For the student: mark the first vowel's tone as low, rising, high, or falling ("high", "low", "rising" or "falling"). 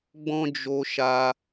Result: high